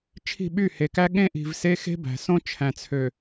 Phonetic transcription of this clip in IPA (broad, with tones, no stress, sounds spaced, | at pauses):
t͡ʃʰ i̤˦˨ ɓ y˦˨ h e˨ k æ˦ ɠ ẽ˦ ʔ i̤˨ v s e˦ x e̤˦ b æ̤˨ s õ˦ t͡ʃʰ æ̃˨ t͡sʰ ø˨